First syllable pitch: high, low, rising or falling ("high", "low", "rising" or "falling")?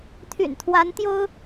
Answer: low